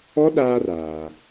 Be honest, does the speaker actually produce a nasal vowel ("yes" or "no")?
no